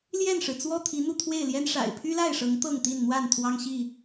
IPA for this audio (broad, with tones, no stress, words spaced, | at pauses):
ljɛ˥˨nʂɻ̩˩ t͡swɔ˥˨ t̪ʰi˨˦n̪u˥˨t̪ʰwe˥˨ɪ̯ljɛ˦n ʂa̰˨˩ɪ̯ pʰy˦la˥˨ɪ̯ʂɤ˨˦ŋ t̪ɤ˥˨ŋt̪i˥˨n n̪wa˥˨n t̪ʰwɑ˦ŋɕi˥˨